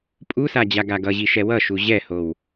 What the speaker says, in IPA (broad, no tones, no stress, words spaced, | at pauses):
pʼusa d͡ʑaɡaɡʌʑi ʃɛwʌʃu ʑɛhow